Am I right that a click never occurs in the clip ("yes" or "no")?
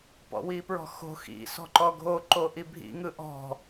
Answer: no